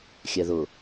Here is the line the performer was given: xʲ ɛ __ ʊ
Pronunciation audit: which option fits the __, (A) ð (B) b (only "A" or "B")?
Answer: A